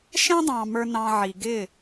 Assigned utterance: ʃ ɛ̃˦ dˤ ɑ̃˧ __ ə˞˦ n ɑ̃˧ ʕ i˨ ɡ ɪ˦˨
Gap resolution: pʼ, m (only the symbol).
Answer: m